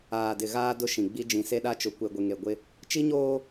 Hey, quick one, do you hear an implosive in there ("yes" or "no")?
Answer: yes